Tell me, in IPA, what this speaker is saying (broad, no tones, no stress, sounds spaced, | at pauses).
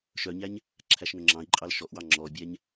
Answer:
ʃ œ ɲ æ ɲ | ǁʰ æ ʃ ŋ ɵ ŋ͡ǁ ɑ̃ i̯ ǃʼ ɑ l ʃ ɔ ʔ w ɑ ŋ͡ǁ ɔ bʲ æ ɲ